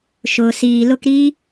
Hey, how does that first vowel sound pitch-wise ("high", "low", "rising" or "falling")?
low